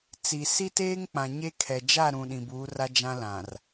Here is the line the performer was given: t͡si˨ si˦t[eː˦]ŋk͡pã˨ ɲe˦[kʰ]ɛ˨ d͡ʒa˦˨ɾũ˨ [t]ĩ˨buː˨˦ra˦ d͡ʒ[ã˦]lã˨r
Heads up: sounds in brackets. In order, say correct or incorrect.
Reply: correct, correct, incorrect: ɗ, correct

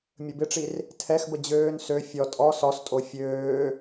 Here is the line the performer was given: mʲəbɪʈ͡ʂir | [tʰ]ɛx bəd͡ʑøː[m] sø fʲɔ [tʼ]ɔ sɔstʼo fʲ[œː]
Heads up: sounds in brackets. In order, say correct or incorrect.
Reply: correct, incorrect: n, correct, incorrect: øː

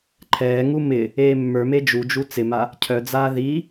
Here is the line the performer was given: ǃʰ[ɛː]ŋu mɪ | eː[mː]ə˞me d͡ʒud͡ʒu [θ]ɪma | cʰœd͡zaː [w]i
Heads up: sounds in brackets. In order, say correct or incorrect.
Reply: correct, correct, incorrect: t͡s, incorrect: ð

